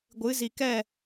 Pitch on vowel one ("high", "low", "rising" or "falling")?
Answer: rising